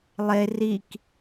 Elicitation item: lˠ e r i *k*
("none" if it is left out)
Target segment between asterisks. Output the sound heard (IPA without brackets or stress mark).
k